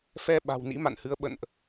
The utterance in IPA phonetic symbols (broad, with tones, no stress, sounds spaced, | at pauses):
f ɛ˧ ɓ a̤˨˩ w n ḭ˧˥ m a̰˧˨ n h ɨ˨˦ ə̯ ɓ ə̰˧˨ n ʔ